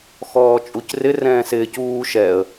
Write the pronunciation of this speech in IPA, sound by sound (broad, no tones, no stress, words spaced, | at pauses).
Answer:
xɔːt͡ʃʼucrɪ rɛ̃ːsɪːc uː ʃɛə̯